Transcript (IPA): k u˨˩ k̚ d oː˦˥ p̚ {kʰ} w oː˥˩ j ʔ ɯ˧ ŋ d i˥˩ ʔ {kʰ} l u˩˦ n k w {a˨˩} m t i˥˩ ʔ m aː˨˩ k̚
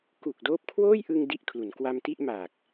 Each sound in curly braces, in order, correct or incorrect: correct, correct, incorrect: a˧

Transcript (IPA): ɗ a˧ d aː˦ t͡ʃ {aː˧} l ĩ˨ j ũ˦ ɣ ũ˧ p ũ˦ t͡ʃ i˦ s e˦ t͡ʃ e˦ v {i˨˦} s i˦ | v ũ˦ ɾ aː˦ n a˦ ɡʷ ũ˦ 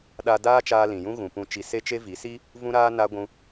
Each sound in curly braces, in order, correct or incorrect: correct, correct

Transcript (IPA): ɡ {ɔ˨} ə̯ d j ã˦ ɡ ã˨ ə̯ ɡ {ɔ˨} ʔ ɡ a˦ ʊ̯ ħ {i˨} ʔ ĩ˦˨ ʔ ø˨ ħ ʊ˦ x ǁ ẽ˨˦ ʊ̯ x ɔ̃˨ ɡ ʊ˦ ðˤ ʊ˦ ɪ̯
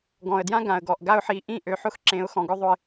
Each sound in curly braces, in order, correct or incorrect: incorrect: ɔ̃˨, correct, incorrect: i˨˦

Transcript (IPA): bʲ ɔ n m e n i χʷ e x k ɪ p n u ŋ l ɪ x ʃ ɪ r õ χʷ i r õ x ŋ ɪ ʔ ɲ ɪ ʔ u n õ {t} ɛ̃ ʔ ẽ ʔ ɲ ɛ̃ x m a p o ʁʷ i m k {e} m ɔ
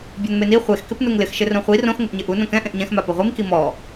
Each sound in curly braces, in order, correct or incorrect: incorrect: k, incorrect: i

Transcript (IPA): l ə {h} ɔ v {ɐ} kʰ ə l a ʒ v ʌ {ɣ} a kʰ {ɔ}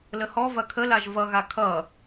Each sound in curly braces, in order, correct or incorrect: correct, correct, correct, incorrect: ʌ

